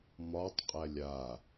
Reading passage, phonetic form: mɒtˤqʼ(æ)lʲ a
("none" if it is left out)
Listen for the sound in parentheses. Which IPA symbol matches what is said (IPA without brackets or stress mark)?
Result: æ